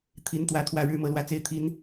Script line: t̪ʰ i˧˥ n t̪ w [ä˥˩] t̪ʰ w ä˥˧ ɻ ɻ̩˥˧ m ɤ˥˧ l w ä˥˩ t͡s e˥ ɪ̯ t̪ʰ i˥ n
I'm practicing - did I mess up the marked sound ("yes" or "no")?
yes